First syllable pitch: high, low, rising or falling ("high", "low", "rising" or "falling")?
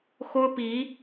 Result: high